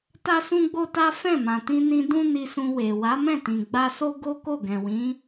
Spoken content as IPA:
t a˦ s ũ˦ ɡ͡b o˦ t a˦ f ɛ̃˦˨ m ã˨ t ĩ˧ n ĩ˧ d ũ˦ n i˧ s ũ˧ w e˨ w a˨˦ m ɛ̃˦˨ t ĩ˨ ɡ͡b a˧ s o˦ ɡ o˦ k o˦˨ ɡ ɛ̃˨ w ĩ˨˦

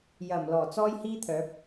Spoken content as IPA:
j ɐ˨˩ m l ɔː˨˩ t͡s ɔː˥ j h iː˥ t̪ʰ œː˨˥ p̚

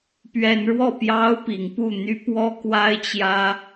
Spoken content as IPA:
p ɥ ɛ˨˦ n ɻ w ɔ˥˨ p j ɑ˦ ʊ̯ p i˨˦ ŋ p u˥˨ n̪ y˦ p w ɔ˦ k w a˦ ɪ̯ t͡ɕ j ä˦

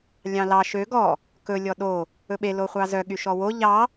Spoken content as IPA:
lʲ ɑ̃ l ɑ ʃ ø ɡ ɔ | k ɵ lʲ ɔ ɗ o | ɵ ɓ e l o χʷ ɑ z œ ɠ y ʃ ɔ w o ʎ ɑ

